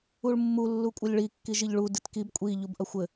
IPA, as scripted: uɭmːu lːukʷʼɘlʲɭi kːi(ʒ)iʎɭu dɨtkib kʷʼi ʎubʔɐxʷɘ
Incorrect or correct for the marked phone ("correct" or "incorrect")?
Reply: correct